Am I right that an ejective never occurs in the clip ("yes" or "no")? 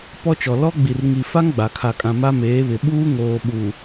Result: no